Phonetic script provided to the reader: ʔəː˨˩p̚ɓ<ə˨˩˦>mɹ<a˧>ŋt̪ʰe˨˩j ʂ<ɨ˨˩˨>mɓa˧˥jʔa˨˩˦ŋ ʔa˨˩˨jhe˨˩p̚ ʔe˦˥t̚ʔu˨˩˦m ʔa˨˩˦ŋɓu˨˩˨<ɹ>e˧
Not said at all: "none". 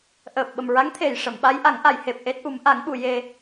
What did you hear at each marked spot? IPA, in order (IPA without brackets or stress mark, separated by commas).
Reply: ə˨˩, a˧˥, ə˨˩˨, j